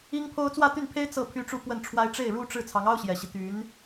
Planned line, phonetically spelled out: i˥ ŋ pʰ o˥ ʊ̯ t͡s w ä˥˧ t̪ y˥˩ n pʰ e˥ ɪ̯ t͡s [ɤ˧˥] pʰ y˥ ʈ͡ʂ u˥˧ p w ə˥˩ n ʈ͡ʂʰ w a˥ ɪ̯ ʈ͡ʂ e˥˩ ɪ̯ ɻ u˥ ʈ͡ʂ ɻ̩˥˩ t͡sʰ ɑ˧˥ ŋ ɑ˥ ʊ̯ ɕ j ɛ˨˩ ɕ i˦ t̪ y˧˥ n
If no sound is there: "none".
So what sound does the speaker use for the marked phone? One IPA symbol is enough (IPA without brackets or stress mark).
ɤ˥˩